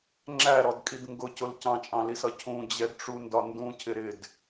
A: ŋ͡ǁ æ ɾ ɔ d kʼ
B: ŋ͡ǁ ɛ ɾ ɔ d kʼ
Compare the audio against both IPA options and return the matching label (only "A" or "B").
A